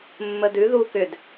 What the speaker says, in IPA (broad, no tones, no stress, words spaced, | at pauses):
mːədʉ ðu kʏd